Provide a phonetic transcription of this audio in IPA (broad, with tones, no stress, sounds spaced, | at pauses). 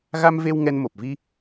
ɣ a˧ m v e˧ w ŋ ɛ˧ n m o˨˩ p̚ v i˧